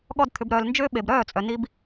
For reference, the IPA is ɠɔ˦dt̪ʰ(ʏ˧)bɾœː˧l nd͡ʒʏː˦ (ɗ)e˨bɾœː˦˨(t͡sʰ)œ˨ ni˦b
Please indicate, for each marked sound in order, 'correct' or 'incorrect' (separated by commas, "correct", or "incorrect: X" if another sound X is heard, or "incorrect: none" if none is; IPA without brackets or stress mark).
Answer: correct, incorrect: ɓ, incorrect: t͡sʼ